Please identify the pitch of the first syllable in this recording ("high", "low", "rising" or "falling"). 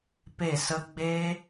falling